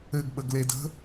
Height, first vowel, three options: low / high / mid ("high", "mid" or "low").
mid